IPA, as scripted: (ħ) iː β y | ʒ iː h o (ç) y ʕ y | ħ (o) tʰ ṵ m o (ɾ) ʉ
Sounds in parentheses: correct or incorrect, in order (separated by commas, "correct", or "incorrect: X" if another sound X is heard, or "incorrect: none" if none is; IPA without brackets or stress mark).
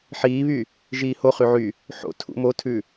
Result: correct, incorrect: χ, incorrect: o̰, incorrect: tʰ